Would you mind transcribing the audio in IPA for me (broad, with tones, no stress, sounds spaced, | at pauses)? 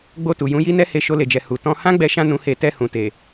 ɡ͡b o˧ t u˨ j ũ˨˦ j i˦ n ɛ˦ h e˧ ʃ o˧ l e˨ d͡ʒ ɛ˨ h u˨ t ɔ̃˧ h ã˦ ɡ͡b ɛ˧ ʃ ã˧ n ũ˧ h e˧ t ɛ˧ h ũ˨ t e˨